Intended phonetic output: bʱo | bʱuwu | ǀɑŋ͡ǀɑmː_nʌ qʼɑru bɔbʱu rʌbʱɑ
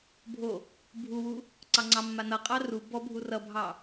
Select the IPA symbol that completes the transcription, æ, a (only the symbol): a